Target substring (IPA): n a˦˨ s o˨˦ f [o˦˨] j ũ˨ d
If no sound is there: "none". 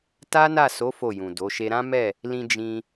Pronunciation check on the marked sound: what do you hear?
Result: o˦˨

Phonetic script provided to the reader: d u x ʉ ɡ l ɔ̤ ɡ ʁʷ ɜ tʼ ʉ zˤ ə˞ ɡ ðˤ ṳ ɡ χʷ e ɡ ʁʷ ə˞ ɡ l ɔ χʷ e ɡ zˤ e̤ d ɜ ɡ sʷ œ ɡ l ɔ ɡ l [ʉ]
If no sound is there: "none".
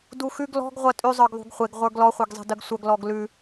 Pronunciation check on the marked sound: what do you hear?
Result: ʉ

